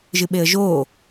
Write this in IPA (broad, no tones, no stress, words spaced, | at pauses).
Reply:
ʒɨɓeə̯ʒoː